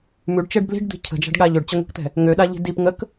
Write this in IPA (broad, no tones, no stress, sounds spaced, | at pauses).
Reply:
m ʉ ɖ t͡ʃ ɛ ɖ b l i̤ ɖ d̪ i̤ cʰ ə̤ d͡ʒ a̤ ɖ ɠ a ʎ ø ɖ t͡ɕ ə ŋʷ i̤ k t̪ ɛ̤ | ŋ ø ɗ a ʎ i̤ d i p ŋ ə k